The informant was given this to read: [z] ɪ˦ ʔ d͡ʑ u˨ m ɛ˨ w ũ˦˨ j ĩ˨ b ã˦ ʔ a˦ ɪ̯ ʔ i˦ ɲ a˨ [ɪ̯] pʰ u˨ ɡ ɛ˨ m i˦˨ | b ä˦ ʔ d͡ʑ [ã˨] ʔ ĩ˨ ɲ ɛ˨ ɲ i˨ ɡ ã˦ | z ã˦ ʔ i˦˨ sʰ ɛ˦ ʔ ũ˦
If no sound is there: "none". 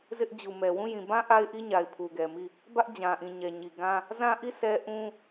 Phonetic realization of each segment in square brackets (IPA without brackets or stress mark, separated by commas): z, ɪ̯, ã˨